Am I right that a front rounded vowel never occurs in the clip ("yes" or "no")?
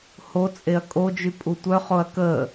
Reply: no